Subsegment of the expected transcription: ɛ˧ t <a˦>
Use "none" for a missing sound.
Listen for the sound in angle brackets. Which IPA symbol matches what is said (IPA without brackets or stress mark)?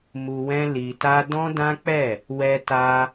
a˧